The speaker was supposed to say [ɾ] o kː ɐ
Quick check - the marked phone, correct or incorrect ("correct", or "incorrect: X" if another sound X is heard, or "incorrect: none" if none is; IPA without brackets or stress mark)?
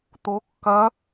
incorrect: t̪